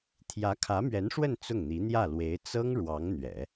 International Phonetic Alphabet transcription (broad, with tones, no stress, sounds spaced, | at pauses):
t̪ʰ j ä˧˥ kʰ ä˧˥ m ɥ ɛ˧˥ n ʂ w ə˥˧ n t͡s ʊ˥˩ ŋ n̪ i˧˥ n̪ j ä˥˩ l w e˧˥ ɪ̯ t͡s ɤ˥ ŋ ɻ w ɑ˧˥ ŋ n̪ ɥ ɛ̰˨˩˦